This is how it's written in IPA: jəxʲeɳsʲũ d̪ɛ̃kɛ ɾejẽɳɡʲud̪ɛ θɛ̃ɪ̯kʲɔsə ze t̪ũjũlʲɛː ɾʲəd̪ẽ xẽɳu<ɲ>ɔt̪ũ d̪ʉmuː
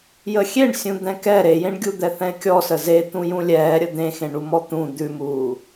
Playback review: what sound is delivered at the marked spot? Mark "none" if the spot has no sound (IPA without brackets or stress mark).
m